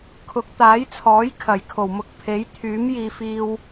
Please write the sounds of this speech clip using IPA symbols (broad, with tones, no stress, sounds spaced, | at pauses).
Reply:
kʰ ʊ˨˥ k̚ t̪ aː˨˥ j t͡sʰ ɔː˨˥ j kʰ ɐ˨˩ j kʰ o˨˩ w m ʊ˧ k̚ pʰ e˨˥ j t̪ʰ yː˨˥ m j iː˨ f iː˧ w